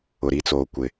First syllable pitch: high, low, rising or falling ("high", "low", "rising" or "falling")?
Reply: low